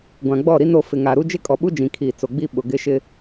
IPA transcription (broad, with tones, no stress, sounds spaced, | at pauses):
ɡʷ ã˨ ɡ͡b ɔ˦˨ ɾ i˦ n o˦˨ f ɪ˨ ŋ a˨ ɾ u˦ d͡ʒ ɪ˦ kʼ ɔ˨ ɓ u˦ d͡ʒ ĩ˨ kʰ iː˨ t͡s o˨ ɡ͡b i˦ ɓ ʊ˨ ɡ ɪ˦ ʃ ɪ˦